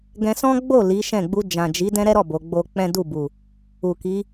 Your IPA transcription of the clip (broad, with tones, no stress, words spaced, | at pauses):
ɡɛ̃˧sɔ̃˦ɡ͡bo˦˨ li˨˦ʃɛ̃˦˨ ɡ͡bu˧ d͡ʒã˨d͡ʒi˨˦ dɛ̃˦ɾɛ˦ɾɔ˦˨ bo˨˦ɡ͡bo˦ k͡pɛ̃˦du˦˨bu˨ | u˨ki˨˦